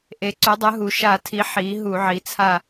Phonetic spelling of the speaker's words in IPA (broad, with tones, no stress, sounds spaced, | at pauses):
ʔ e˩˥ ǀ u˩˥ dˤ ɯ˩˥ ɦ u˩˧ ʃ a˧˩˧ tʰ i˩˥ ħ i˩˥ ɦ u˧˩˧ ʕ i˩˥ t͡sʰ a˦˨